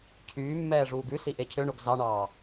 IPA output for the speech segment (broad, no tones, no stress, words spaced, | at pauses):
cʰyːmːɛːʐuːɡ ʉsiʔe cʰøɳoɡ zɑɳɑː